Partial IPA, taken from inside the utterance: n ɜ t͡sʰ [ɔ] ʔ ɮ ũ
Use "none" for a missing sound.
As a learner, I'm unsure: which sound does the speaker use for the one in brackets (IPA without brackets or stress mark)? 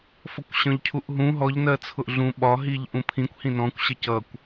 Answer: ʊ